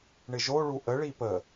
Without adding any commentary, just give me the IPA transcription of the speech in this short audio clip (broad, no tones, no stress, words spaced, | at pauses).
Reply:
ɳɪʒoɭu ʔəɭi pə